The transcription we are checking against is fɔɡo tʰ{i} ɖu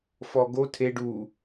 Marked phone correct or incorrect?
incorrect